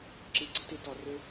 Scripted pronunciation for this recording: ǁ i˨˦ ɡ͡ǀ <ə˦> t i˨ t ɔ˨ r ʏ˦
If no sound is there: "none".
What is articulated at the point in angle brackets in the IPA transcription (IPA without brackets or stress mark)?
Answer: ə˦